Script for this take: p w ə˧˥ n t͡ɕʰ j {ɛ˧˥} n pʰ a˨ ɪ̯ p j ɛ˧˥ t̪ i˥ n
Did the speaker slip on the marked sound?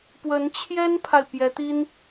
yes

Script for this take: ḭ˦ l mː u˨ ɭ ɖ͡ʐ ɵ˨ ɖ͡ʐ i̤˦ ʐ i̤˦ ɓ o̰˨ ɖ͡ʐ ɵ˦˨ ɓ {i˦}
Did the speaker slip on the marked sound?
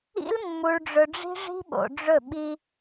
no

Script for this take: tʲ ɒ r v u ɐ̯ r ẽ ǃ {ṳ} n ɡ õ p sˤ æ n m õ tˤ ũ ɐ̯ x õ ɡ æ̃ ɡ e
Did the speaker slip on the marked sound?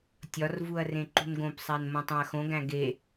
no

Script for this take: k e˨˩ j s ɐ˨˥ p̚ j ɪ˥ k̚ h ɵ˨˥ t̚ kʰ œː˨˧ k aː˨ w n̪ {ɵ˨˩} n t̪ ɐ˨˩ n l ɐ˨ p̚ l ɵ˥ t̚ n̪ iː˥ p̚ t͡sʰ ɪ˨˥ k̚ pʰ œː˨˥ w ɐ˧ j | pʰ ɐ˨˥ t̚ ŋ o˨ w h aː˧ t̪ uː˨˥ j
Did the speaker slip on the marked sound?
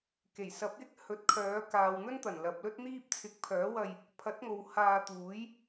yes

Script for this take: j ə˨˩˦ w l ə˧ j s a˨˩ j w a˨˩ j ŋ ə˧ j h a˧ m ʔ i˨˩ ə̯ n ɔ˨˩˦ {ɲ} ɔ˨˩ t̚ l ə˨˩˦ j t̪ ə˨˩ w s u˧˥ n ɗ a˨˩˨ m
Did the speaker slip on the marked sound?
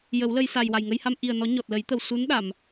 no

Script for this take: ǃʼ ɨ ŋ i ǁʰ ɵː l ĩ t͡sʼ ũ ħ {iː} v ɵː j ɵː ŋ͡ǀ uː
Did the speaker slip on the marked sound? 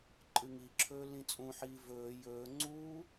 no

